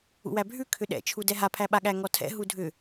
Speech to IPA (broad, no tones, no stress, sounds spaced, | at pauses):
ṵ w æ bʱ ʉ kʰ ʏ ɗ ɛ̰ t͡ʃʰ u d ɛ ɦ a pʰ æ ɓ a ɠ æ ŋ ɔ tʰ ɛ̰ ɦ u dʱ ʏ